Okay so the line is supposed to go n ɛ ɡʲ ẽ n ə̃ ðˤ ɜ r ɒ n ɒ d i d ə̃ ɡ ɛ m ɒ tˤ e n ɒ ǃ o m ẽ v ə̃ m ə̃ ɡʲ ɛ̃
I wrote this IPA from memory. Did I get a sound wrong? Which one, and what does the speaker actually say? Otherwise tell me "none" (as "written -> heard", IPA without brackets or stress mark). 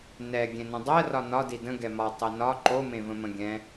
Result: ðˤ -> dˤ